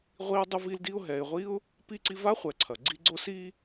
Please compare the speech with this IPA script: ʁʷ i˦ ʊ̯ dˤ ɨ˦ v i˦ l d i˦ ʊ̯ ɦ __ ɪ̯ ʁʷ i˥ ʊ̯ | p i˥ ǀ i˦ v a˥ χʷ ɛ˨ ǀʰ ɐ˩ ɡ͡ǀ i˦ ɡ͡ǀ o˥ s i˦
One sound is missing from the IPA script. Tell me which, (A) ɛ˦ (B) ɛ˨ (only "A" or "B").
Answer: B